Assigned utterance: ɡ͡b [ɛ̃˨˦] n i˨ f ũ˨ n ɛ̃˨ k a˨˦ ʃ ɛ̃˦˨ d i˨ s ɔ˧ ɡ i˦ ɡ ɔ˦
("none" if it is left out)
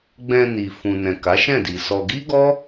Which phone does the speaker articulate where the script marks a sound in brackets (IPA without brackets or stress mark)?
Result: ɛ̃˧